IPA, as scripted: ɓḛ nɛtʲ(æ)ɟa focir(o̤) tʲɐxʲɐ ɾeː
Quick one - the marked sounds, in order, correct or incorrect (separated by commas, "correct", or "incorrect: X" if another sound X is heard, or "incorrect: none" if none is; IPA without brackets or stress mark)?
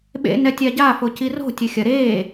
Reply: incorrect: a, correct